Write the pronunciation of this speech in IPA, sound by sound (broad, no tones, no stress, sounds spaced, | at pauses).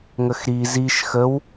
ŋ ə x ɾ i z i ʃ x ə w